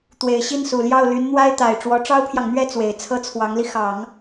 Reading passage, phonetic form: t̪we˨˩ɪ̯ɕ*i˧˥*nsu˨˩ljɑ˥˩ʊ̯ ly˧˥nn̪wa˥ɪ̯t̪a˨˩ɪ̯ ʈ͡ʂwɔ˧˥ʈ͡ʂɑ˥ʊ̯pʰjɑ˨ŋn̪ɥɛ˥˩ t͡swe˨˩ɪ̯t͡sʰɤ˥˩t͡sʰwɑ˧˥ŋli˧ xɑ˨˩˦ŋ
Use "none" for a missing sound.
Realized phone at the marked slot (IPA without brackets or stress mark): i˥˩